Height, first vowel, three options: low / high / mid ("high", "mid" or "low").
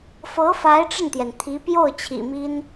mid